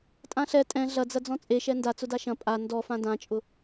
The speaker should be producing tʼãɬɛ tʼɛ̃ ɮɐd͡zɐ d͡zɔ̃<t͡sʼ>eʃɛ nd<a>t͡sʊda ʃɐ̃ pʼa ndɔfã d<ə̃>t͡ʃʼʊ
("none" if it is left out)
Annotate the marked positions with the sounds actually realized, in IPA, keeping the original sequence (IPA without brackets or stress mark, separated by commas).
t͡sʼ, a, ã